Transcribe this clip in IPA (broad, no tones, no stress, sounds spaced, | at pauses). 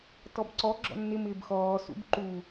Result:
t ɔ b ǀ ɔ ɡ͡ǁ ɔ̰ nː ɪ m ɪː b x ɔː s ṵ b ǃ u